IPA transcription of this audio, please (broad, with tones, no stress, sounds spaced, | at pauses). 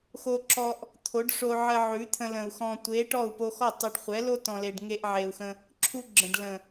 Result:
x o˧ ǁ ɔ˧ ʔ | t̪ʰ o˨˦ ɖ ʂ o˧ ʕ ə˧ ʕ ʉ˨˦ t̪ʰ ə̃˧ l ə̃˨ u̯ x ɔ̃˨ tʷ e˨˦ ʈ ɔ˦˨ u̯ p o˧ x ɔ˦˨ tˤ u˨ ɖ χʷ ɛ˨˦ l o˦ t ɔ̃˨ l e˨ ɖ ŋ e˧ ʔ ʕ e˨ u̯ x ə̃˧ | ǁʰ u˦ ɡ͡ǁ ə̃˨ ɖ l ə̃˨